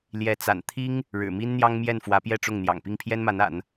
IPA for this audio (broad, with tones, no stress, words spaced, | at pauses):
ljɛ˧˥t͡sa̰˨˩n t̪ʰi˥ŋ | ɻɻ̩˨˩mi˥nn̪jɑ˥ŋ mjɛ˥˩nfwä˧˥pjɛ˥˧ʈ͡ʂʊ˥˩ŋ n̪jɑ̰˨˩ŋpi˥˩ŋpʰjɛ˥nma˧˥n a̰˨˩˦n